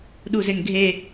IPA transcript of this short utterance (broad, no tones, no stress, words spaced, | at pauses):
ɗuzeŋɡʱe